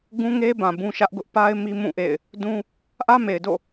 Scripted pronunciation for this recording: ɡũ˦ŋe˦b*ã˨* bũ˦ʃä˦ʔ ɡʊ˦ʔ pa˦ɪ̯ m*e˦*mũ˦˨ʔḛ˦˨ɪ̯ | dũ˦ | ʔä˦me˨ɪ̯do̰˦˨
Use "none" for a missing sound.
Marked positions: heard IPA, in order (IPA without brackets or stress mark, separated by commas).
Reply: ã˨, i˦